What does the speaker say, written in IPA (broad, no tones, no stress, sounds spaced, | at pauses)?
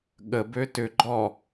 ɠ ə b ø t ʏ ɡ͡ǃ ɔ